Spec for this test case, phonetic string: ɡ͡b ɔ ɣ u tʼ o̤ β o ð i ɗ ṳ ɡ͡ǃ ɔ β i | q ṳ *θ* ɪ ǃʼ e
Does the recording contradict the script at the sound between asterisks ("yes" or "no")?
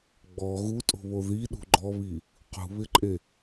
yes